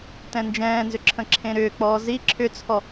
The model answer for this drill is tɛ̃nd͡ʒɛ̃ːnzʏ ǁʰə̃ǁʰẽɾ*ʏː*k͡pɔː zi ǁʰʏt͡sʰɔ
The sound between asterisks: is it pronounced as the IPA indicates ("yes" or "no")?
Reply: yes